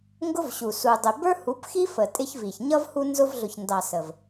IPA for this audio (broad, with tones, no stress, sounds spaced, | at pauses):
ŋ ɡ ʊ˦ v ɕ u˨ s u˨ dˤ ɪ˨ b ə˞˦ h u˨˦ p x i˦ f ə˨ tʼ ɪ˧ ç v i˨ ç ɲ ʌ˧ v h u˧ n z ʊ˧ v ɮ ʊ˨ ç n d ɑ˨ s ə˨ v